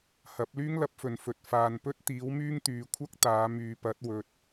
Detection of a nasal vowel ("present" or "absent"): absent